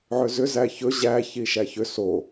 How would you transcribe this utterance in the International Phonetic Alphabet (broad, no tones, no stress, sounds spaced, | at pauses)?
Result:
ʕ ø z ʏ z æ ç ɵ ʑ æ ç i ʃ æ ç ʏ s o